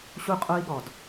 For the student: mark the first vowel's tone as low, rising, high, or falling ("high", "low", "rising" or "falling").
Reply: high